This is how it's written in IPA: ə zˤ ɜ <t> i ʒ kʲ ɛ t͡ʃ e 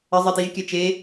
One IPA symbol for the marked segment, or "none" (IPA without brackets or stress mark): t